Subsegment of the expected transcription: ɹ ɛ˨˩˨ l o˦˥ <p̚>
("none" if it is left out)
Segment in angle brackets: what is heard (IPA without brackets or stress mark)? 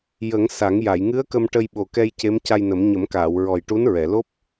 p̚